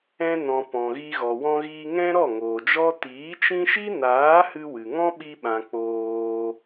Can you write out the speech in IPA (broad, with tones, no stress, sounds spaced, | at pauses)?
ɛ̃˧ n ɔ̃˨ p ɔ̃˨ ɣ i˧ ɣ ɔ˨ w ɔ̃˧ ɣ iː˧ ŋ ɛ̃˦ ɾ ɔ˦˨ ŋ oː˨ d͡ʒ ɔ˦ t iː˨˦ t͡ʃ ĩ˦ ʃ i˦ n aː˨˦ h ɨ˧ w ɨ˨ ŋ ɔ̃˦ ɓ i˧ ɓ ã˨ k͡p oː˧